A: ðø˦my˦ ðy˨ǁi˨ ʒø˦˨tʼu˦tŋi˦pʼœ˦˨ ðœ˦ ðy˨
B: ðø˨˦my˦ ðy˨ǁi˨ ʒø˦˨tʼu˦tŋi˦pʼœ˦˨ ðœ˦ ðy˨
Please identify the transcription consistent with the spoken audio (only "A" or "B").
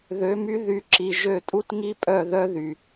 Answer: B